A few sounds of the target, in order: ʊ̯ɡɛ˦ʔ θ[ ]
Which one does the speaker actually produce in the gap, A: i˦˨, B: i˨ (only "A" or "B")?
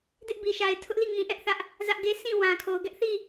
A